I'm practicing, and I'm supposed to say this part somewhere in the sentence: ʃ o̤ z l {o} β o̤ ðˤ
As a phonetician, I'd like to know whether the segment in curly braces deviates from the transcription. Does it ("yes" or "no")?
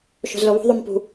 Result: no